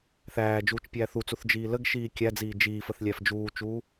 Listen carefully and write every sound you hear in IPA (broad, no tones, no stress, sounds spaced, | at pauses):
θ æː d͡ʒ uː t͡ʃ pʲ æː θ u t͡s u θ d͡ʒ iː l ə ɡ ʃ iː kʲ æ d͡z iː d͡ʒ iː f ə θ lʲ æ f d͡ʒ uː t͡ʃ uː